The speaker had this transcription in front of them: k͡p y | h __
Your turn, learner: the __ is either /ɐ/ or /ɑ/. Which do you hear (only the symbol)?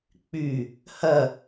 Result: ɐ